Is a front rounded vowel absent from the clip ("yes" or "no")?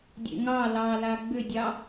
no